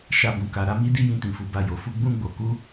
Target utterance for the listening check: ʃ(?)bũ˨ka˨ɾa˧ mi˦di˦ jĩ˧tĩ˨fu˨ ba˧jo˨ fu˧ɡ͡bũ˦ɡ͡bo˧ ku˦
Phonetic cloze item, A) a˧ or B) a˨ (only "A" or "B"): A